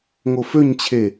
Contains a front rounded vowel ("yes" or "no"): yes